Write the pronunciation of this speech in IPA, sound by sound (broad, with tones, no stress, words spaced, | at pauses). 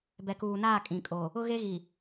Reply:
bɛ˨kuː˨naː˦˨ kʼĩ˨kʼo˨ | ʊ˦ɣe˦ɣi˨